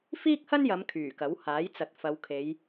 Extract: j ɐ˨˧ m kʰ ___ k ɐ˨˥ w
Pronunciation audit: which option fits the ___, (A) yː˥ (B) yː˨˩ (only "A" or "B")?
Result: B